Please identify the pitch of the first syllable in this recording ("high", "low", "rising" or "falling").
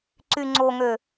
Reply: low